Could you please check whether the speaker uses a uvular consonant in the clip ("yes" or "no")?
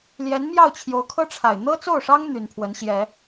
no